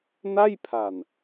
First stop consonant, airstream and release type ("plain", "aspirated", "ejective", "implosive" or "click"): aspirated